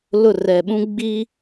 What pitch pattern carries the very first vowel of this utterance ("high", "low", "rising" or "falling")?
falling